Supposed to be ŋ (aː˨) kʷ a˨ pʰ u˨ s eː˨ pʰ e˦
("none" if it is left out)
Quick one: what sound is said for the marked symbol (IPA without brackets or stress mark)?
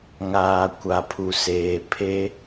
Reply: aː˨